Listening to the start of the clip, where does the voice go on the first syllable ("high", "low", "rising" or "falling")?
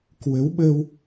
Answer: rising